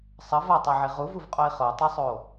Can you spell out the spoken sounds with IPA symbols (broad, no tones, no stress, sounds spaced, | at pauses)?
sˤ ʌ v a tˤ e ʕ i ʁ u v u v qʼ o i̯ χ o tˤ ɯ sˤ o